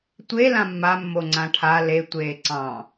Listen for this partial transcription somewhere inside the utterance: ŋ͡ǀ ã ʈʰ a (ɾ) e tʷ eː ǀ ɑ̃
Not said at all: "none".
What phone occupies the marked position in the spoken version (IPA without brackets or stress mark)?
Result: l